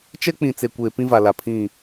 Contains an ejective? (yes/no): no